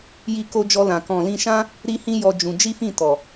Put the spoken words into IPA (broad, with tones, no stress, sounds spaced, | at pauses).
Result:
j i˧ k o˧ d͡ʒ ɔ˧ l ã˨ k ɔ̃˨ l ĩ˧ ʃ ã˦ | ɾ i˦ h ĩ˦ j ɔ˧ d͡ʒ ũ˧ d͡ʒ i˦ f ĩ˦˨ t ɔ˨